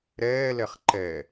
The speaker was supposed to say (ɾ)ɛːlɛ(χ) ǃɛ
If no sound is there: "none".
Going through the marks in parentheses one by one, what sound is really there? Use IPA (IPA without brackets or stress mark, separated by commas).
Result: ɾ, χ